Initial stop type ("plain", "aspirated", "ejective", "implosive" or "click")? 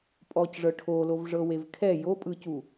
ejective